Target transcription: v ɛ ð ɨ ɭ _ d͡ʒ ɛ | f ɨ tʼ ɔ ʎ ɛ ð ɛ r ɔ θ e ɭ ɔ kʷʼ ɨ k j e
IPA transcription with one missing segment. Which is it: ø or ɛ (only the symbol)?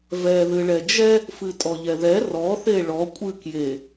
ɛ